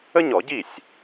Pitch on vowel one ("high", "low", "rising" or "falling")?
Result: high